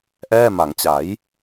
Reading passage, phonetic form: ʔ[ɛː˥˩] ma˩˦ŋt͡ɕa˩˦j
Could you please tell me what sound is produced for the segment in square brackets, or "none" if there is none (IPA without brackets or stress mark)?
ɛː˥˩